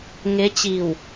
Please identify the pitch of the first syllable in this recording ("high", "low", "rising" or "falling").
rising